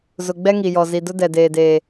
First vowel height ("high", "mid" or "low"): high